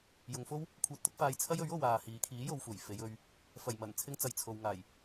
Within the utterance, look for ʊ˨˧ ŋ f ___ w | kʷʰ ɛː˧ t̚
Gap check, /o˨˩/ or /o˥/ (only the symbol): o˥